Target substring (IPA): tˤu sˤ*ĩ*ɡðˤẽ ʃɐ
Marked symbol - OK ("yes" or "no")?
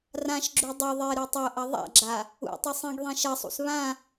yes